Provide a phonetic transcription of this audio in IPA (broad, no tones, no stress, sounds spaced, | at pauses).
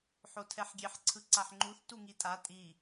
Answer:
ħ o tʰ ɛ ħ ɡʲ e ħ ǀʰ ɯ ǀ a ħ ŋ͡ǃ u θ t u ŋ i tʼ a tʼ i